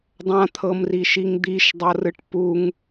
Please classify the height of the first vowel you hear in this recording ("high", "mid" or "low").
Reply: low